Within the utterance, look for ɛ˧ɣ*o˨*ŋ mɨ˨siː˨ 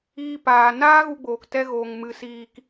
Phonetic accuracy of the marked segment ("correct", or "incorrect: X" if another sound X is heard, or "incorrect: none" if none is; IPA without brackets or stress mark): correct